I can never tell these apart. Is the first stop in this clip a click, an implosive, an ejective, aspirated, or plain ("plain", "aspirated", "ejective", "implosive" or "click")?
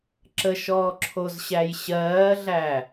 click